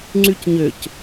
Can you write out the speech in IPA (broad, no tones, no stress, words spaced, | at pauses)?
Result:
ŋ͡ǀycɲøc